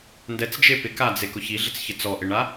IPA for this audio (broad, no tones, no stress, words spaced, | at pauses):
ndɛt͡sd͡ʒe pɪkad͡ze kʊçiɮɪt͡sçɪ t͡sɔʔɪɳa